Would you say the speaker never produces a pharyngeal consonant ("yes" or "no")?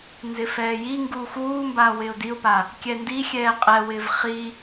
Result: yes